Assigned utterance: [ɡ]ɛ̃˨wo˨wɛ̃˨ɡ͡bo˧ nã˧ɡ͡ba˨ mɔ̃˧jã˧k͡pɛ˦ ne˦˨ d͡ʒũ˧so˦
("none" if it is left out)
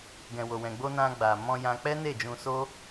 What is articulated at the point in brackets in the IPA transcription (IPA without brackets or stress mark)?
ɡ